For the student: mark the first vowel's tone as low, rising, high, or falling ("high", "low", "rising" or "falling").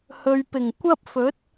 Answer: low